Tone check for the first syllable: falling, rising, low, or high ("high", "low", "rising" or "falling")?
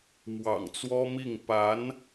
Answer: low